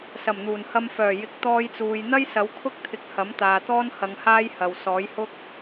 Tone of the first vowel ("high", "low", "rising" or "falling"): low